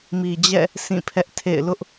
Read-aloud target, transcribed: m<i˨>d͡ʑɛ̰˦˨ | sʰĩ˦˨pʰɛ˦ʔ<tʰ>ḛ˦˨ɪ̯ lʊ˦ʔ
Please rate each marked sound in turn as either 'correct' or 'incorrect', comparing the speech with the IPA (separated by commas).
correct, correct